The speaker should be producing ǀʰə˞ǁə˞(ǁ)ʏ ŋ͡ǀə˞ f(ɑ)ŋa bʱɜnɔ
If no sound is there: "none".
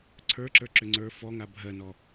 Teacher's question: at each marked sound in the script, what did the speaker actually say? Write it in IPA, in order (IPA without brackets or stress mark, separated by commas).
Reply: ǁ, ɔ